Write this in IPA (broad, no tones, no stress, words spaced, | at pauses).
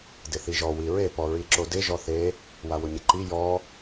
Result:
dɪθiʒɔ wiɹe pɔɹiǁodɪ ʒɔθe | wawʊɲɪǃi jɔ